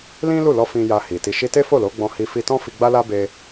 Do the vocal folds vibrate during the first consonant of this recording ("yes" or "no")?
yes